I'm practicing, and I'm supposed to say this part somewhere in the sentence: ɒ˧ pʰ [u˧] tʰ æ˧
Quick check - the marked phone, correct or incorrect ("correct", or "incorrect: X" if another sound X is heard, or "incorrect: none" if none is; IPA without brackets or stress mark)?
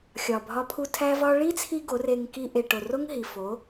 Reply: correct